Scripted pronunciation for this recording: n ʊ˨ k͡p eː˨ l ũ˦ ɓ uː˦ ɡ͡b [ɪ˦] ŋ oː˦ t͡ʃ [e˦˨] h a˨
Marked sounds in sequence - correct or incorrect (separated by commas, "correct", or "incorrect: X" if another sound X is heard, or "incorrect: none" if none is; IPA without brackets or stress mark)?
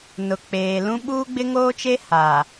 correct, incorrect: e˦